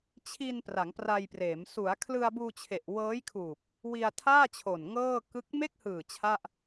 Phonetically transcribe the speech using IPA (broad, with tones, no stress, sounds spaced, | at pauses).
t͡ɕʰ i˧ n p r a˩˦ ŋ p r a˧ j p r eː˩˦ m s u˩˦ a̯ kʰ l ɯ˧ a̯ b uː˧ t͡ɕʰ e˨˩ ʔ w ɤː˦˥ j kʰ uː˨˩ p̚ | w i˧ a̯ tʰ aː˥˩ t͡ɕʰ o˨˩ n ŋ ɤː˥˩ k ɯ˥˩ k̚ m e˥˩ k̚ h ɯː˨˩ t͡ɕʰ a˥˩ ʔ